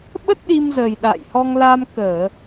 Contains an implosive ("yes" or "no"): yes